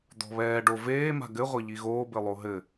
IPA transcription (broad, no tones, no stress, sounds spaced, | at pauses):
d̪ ɔ̤ β ɛː ɖ o v eː m a̤ ɡ ɘ ʁʷ ɐ ʎ i ɣ oː b ɘ lˠ o ɦ ɘ